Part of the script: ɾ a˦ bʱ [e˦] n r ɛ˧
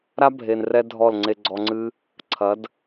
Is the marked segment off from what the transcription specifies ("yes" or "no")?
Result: yes